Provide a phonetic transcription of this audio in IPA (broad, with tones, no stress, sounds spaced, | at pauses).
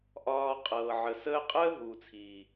ʔ ɒː˧ qʼ ɤː˨ ʕ ə˨ s əː˦ qʼ əː˦ ɦ uː˨ t͡sʰ iː˨